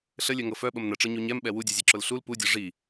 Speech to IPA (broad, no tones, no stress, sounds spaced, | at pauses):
ɬ ə lʲ œ ŋ ɤ f œ ɓ ə m n ə ʈ͡ʂ ɤ ɲ u ɲ ɛ m ɓ ɛ w u dʲ ɤ zʲ ɤ ǁ ʊ l ɬ u l p u dʲ ɤ ʐ i